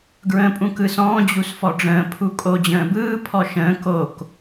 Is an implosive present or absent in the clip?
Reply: absent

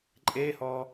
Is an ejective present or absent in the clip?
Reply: present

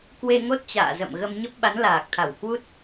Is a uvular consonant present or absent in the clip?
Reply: absent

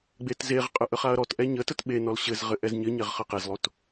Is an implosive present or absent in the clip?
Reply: present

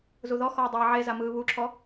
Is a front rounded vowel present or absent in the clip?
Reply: absent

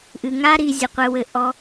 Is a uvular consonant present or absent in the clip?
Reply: present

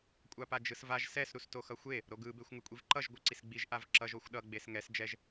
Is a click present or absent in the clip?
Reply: present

